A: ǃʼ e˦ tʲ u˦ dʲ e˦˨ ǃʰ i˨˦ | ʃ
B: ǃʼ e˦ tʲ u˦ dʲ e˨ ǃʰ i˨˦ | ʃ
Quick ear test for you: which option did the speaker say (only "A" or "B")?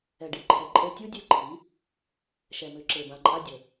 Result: A